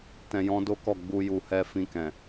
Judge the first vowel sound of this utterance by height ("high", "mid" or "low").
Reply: mid